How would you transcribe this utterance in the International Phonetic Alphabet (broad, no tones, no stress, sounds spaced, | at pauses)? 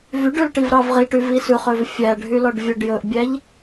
v y ɖ ʉ l ʈ i v ɾ ɑ v ʁ i ʈ y v i s ʉ χ ø v fʲ æ ɖʱ y l ɔ ɖ vʲ œ ɖ j ɵ ʔ bʲ æ ʎ